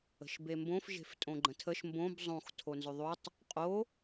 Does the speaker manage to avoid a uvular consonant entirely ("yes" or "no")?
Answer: no